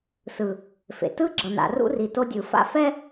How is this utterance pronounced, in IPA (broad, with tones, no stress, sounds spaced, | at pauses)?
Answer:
s ɯ˨ | f ḛ˨ t ɯ˦ ɡ͡ǁ ʌ˨ n a̰˨ r ṵ˦ r i˨ t o˦ dʲ ɯ˨ f a̰˦ f ɛ˦